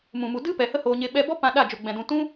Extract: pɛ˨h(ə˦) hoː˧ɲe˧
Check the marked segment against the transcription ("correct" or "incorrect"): correct